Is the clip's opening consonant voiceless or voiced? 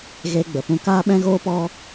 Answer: voiced